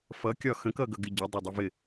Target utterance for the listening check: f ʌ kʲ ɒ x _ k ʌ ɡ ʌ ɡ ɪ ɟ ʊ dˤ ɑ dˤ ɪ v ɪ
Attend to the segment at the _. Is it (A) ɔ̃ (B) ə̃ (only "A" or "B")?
B